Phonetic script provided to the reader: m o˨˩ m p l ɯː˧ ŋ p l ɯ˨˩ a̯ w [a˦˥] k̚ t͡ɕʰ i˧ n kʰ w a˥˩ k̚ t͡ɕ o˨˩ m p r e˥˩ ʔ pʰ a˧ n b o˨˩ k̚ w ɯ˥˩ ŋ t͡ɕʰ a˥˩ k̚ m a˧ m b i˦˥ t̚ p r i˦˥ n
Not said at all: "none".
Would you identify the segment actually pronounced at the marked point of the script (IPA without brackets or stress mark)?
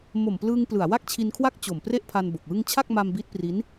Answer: a˥˩